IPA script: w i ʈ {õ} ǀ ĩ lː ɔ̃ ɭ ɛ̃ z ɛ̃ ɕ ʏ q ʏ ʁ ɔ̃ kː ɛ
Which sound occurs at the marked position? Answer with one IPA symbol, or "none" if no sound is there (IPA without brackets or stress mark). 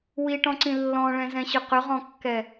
ɔ̃